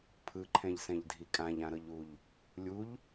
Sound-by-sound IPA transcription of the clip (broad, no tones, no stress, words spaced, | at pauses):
pʰɯǃʰɛ̃ʎsɛ̃ʎdʱi kʼãʎãɾɤʎuʎ | lʲuʎ